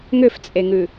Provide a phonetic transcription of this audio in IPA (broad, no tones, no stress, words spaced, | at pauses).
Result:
ŋʏft͡sʼeŋʉ